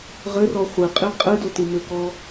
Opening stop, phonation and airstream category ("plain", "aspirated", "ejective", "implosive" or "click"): ejective